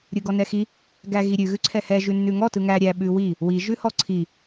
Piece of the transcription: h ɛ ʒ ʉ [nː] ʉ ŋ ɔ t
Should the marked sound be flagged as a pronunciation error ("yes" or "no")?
no